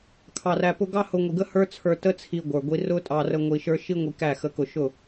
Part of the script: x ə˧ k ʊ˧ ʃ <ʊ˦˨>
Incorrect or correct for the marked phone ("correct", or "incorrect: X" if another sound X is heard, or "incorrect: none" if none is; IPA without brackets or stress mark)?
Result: correct